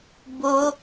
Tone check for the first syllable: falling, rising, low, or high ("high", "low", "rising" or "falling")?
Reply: high